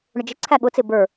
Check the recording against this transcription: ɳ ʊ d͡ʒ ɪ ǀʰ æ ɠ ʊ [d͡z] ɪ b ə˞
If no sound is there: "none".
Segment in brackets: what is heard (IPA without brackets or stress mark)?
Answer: t͡s